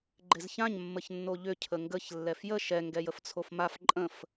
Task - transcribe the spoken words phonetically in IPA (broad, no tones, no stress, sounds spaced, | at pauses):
ɡ͡ǃ ɪ z ç ã ɲ mː ə ç nː o ʎ ʏ cʰ ə ŋ ɡ ə ç lː ɛ f j ə ʃ ɛ ŋ ɡ ɛ j ə f t͡sʰ o f m a f ǃʼ ə̃ f